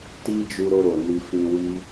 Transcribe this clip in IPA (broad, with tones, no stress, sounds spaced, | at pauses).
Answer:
t i˦ d͡ʒ u˧ ɾ o˧ ɾ o˨ n i˧ f ĩ˧ w i˦